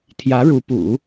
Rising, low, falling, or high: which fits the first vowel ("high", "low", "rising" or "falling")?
rising